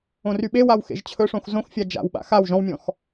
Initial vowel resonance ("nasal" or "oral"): nasal